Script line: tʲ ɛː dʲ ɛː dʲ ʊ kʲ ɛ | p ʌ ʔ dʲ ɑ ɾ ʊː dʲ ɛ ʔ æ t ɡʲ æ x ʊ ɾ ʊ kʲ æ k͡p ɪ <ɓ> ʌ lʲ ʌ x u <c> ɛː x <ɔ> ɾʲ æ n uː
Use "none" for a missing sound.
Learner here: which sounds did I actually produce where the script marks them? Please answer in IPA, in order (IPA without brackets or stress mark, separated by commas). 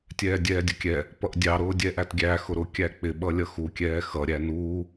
ɓ, kʲ, ʌ